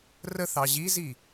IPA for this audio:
r ə θ ɑ ʑ i z i

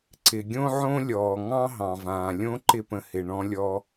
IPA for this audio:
ǀ ɪ˩ ɡʲ õ˥ ʕ õ˥ lʲ ɔː˩ ŋ ɑ̃˥ ɦ ɑ̃˩ v ãː˩ lʲ õ˥ ǃ ɪ˥ p ə̃˧ h ɪ˩ ɳ ɔ̃˧ lʲ ɔ˧

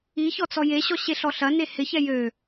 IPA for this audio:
i ç ɔ t͡s ɔ j e ɕ ɔ ɕ e ɬ ɔ ɬ ɐ n e h ɪ ç ɛ j ø

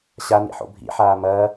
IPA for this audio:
ɕ a n ḭ ħ o̰ bʱ ḭ ħ aː m ɐː

